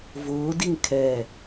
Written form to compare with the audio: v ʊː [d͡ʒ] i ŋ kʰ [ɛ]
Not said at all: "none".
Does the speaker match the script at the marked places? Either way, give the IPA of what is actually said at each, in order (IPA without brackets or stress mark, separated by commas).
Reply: d, ɛ